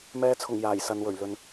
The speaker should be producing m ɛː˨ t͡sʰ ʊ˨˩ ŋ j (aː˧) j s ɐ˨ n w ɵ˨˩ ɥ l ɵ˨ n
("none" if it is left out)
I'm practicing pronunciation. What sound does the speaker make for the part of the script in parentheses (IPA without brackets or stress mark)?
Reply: aː˨˩